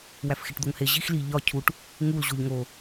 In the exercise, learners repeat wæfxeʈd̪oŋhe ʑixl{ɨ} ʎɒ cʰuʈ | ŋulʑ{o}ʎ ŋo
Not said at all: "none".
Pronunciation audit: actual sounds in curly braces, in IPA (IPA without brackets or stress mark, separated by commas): i, o